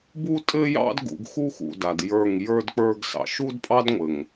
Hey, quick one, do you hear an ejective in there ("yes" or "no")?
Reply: yes